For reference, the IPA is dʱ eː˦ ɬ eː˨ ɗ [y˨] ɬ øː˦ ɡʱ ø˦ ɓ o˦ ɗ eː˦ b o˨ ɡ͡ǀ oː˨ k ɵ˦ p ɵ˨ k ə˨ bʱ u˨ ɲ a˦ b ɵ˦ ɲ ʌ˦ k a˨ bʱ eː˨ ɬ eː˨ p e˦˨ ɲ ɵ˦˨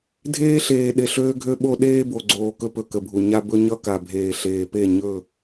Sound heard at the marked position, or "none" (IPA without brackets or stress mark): e˨